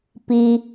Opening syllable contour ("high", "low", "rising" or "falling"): low